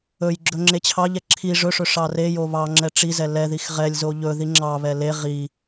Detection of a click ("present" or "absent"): present